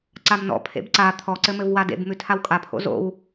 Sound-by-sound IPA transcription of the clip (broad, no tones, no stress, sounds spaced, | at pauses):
ǀ a m n ɔ̰ pʰ ḛ b ǀ a t̪ʰ ɔ ǀ ɘ m ɘ v w a d ḛ b m ʉ tʰ a w kʼ a pʰ o̰ z o̰ w